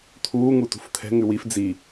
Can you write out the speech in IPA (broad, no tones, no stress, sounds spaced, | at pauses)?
t̪ʰ uː ŋ u t ṳ f t̪ʰ ɛ̤ ŋ ʉ w i f d͡z i